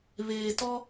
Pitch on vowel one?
low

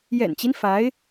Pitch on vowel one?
low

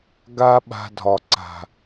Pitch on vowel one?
high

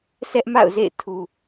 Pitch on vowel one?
high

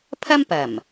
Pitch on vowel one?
high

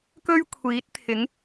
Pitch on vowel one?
high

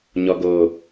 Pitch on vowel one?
low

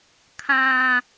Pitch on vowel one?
low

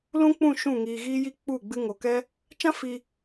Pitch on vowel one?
high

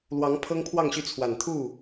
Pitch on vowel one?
rising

